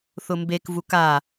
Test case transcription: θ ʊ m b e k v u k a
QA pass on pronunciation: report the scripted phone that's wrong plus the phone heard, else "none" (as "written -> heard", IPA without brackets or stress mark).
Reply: none